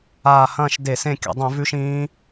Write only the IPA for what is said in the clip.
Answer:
aː˨˩ h ɐ̃ː˦˨ ʃ d e˧˩˧ s ẽ˦˨ kʲ a̰˧˩˧ dˤ ĩ˧˩˧ v ʉ˦˥ ʃ ĩː˦˥

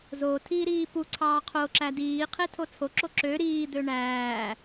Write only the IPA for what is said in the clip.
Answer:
z o tʰ iː ɾ iː p u ǀʰ ɑː qʰ o ǁ æ d iː qʰ e tʰ o t͡sʰ o ǁ o ǁ ø ɾ iː d̪ ø ɳ æː

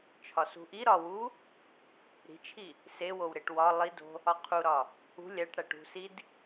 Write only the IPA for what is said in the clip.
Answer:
t͡ʃʰ ɒ s ṳ ʔ i ɾ ɒ w u | ɾ i̤ t͡ʃʰ i | s e w o w ɾ e ʈ w ɒ lˠ i d o̤ | ɒ qʰ u ɾ ɒ | ṳ lʲ æ ʈ ɽ æ ʈ ṳ s i d

